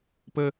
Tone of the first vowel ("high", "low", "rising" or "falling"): high